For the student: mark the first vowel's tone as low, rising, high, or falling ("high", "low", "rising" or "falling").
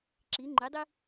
rising